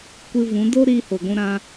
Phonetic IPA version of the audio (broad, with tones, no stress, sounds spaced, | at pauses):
kʷ ɨ˧ v ũ˨˦ d o˦ ɾ iː˧ h o˨ ɡʷ ũ˧ ɾ ã˧